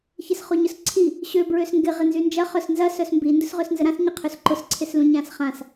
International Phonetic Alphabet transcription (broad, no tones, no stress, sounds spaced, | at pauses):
ç ɪ s χ o ɲ ʊ s ǀʰ i | ɕ ø b ɹ ø s ŋ ɡ ɪ ʁ ɪ n z y n d͡ʒ ɐ χ œ s n z ɐ s œ s m b i n d ʊ s ʁ ø s n z ə ɾ ã s ɲ ɪ qʰ ø s ǃ ʊ s ǀʰ ɪ s l ũ ɲ ã s χ ã s